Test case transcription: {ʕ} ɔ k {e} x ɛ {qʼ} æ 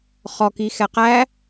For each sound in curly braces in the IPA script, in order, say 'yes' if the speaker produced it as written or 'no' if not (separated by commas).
no, no, no